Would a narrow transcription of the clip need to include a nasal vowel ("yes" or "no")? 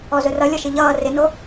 no